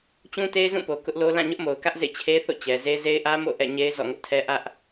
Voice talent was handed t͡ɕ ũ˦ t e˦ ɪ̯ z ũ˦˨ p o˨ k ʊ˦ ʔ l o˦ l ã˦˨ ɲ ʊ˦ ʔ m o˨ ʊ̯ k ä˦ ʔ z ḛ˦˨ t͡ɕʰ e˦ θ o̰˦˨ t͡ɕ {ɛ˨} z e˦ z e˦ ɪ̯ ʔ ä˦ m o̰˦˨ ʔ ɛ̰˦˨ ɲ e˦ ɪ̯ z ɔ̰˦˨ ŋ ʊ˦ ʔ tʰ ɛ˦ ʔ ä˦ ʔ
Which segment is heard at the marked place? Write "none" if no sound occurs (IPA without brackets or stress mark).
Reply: ɛ˨